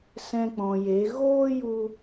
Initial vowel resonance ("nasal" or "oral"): nasal